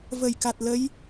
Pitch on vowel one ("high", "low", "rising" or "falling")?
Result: low